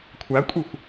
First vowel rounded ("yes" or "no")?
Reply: no